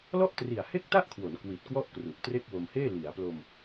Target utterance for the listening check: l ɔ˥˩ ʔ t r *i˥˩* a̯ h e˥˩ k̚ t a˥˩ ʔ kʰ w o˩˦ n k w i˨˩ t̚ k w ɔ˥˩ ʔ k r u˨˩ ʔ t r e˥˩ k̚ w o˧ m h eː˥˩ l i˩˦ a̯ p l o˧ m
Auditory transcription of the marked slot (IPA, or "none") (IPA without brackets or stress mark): i˨˩